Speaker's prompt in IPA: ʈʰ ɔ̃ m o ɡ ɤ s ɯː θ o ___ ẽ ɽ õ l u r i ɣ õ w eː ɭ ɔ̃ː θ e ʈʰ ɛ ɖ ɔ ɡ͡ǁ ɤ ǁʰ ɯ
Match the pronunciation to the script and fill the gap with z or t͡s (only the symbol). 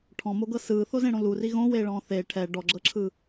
z